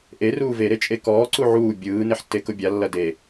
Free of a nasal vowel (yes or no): yes